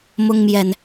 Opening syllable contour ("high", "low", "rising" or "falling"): high